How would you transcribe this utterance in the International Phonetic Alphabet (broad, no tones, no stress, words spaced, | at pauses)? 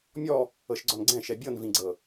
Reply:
mʲɔ | ɤʃɡ͡ǀɔnɡ͡ǀɛ̃ ʃɛbʲɤnvĩɡ͡ǀɤ